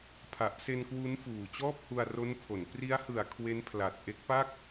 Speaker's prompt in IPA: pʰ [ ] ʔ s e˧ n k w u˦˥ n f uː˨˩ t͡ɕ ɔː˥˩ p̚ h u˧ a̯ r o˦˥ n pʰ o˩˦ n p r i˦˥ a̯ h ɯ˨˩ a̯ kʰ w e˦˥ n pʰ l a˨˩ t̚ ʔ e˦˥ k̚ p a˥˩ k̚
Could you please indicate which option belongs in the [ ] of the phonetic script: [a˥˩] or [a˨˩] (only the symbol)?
a˨˩